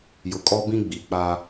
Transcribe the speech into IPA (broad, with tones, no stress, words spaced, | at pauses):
jʊ˨kʼɔ˦bĩ˦ɡ͡bi˨ k͡pa˦